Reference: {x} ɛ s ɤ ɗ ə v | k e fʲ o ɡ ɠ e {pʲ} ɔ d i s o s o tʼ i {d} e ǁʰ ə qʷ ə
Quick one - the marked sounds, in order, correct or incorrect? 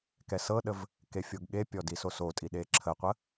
incorrect, correct, incorrect

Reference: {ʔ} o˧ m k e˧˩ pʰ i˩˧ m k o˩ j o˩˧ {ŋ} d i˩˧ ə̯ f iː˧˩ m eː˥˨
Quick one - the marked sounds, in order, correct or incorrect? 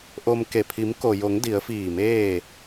correct, correct

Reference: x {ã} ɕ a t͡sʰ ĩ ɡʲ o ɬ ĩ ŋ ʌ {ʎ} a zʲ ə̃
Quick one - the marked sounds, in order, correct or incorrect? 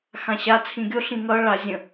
correct, incorrect

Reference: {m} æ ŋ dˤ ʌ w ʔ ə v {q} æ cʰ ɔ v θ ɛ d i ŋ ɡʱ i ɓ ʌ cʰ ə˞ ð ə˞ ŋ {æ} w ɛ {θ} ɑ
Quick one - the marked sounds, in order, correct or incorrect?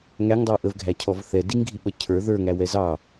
incorrect, incorrect, correct, incorrect

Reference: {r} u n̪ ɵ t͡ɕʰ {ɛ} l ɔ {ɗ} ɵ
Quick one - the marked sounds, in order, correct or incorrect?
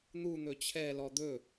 incorrect, correct, incorrect

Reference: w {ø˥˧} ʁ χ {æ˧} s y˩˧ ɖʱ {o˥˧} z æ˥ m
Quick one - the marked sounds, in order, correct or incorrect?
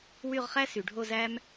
incorrect, incorrect, correct

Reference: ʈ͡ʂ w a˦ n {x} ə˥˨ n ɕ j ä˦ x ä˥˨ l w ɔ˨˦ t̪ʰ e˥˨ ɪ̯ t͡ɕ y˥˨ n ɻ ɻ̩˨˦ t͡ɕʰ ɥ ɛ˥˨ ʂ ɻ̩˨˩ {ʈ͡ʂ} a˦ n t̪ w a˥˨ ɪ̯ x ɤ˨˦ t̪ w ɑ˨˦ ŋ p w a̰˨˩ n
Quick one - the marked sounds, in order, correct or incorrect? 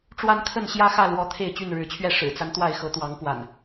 incorrect, incorrect

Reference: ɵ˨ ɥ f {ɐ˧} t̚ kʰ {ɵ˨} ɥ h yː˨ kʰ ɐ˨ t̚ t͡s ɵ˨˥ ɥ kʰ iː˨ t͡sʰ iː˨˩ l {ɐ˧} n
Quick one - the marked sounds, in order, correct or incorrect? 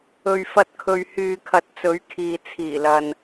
correct, correct, incorrect

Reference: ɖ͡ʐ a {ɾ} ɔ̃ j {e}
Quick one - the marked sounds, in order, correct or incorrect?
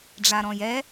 correct, incorrect

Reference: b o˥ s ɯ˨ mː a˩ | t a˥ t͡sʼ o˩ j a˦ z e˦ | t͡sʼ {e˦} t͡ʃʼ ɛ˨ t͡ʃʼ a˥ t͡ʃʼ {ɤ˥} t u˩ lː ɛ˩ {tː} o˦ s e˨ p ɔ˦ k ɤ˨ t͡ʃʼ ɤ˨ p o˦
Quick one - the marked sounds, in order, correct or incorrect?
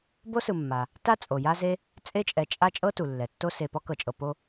correct, correct, correct

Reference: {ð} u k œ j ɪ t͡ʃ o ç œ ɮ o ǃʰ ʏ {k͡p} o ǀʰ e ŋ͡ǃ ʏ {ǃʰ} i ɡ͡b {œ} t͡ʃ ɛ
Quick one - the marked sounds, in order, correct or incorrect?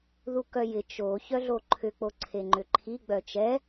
correct, correct, correct, correct

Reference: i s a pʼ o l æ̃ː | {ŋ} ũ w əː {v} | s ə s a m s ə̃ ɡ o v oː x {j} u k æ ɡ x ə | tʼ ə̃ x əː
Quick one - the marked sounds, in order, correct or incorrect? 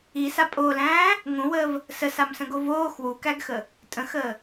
correct, correct, incorrect

